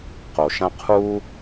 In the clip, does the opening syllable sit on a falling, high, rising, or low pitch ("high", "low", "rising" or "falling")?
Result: low